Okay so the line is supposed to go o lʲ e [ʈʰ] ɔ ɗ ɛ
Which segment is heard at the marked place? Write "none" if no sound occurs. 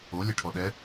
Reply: ʈʰ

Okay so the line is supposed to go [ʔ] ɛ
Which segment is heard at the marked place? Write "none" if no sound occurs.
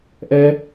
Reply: ʔ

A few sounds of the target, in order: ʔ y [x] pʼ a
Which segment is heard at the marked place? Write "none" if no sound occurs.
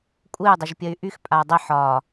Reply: x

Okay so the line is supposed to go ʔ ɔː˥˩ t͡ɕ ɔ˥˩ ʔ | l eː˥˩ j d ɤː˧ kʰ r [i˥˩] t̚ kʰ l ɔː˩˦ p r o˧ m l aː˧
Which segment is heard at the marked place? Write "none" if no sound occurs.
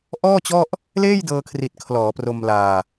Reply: i˨˩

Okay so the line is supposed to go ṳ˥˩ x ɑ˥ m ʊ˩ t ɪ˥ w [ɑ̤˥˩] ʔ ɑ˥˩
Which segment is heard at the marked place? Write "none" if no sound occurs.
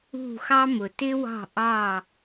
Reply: ɑ̤˥˩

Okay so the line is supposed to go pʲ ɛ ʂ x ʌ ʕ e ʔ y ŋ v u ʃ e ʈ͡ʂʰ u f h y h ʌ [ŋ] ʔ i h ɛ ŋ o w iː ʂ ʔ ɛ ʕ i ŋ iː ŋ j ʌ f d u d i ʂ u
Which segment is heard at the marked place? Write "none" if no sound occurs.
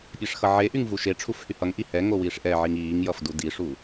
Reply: ŋ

